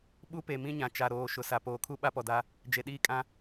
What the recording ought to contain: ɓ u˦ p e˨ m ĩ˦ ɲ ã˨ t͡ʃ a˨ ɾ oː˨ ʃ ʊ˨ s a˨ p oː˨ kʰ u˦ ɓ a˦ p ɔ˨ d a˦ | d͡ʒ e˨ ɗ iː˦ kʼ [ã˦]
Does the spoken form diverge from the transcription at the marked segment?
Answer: no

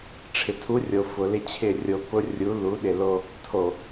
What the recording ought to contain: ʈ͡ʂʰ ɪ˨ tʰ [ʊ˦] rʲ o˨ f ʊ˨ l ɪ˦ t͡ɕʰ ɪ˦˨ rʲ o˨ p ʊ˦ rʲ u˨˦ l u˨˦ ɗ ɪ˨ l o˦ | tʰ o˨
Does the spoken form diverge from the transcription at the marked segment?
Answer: yes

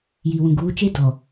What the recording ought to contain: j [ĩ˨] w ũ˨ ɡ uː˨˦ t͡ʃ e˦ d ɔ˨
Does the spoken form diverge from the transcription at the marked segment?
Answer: yes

